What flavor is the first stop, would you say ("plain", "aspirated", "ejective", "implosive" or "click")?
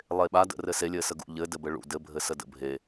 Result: implosive